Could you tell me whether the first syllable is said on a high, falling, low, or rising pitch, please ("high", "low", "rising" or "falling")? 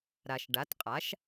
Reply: low